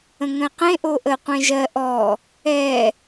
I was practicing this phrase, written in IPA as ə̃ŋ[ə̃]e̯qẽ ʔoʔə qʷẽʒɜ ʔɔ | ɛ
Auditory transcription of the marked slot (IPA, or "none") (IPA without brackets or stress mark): ə̃